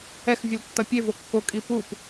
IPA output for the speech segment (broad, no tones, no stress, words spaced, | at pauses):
ɛx vʲɯltːʌpʲevo kːokʼi pup